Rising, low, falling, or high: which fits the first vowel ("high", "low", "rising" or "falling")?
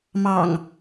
low